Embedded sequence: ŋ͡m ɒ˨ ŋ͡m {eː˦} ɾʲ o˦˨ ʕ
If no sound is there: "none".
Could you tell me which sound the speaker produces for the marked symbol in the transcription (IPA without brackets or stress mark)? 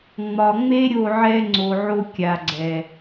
e˦